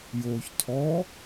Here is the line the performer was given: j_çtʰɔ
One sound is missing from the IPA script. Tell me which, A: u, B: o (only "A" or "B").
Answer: B